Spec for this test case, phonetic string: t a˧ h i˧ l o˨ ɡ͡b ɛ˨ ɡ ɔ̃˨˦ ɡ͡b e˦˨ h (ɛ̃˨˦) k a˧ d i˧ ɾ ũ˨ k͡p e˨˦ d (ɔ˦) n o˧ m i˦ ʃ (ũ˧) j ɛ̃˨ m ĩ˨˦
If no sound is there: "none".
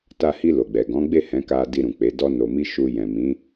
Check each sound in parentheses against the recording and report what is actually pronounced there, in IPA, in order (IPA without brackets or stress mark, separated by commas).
ɛ̃˨˦, ɔ˦, u˧